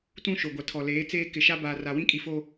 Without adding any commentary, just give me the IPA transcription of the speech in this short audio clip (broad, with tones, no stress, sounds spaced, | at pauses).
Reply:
t ũ˦ ʃ o˨ ɡʷ a˨ tʰ ɔ˨ l eː˨˦ t͡s eː˦ k ɪ˨ ʃ a˦ b aː˨ r a˨ w ĩ˦ kʼ i˨ f o˦